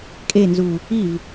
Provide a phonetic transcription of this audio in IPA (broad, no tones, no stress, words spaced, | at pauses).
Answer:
kʼenzu | iv